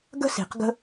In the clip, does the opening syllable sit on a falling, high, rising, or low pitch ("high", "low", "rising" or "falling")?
high